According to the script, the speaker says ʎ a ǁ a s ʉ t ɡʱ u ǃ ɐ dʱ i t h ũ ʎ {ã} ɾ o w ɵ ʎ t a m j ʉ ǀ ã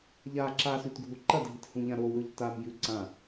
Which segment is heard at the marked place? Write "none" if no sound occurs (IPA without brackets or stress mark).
ã